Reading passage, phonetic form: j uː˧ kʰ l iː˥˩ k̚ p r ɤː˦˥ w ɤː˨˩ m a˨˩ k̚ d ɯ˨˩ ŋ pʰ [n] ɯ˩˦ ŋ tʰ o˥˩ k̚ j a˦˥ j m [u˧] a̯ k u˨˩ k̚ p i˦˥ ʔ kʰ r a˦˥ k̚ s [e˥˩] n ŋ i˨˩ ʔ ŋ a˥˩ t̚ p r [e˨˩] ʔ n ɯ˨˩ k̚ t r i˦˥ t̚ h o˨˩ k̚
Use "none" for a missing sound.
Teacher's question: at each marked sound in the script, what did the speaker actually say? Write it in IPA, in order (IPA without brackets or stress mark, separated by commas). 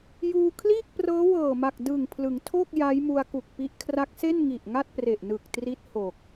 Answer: l, u˧, e˥˩, e˨˩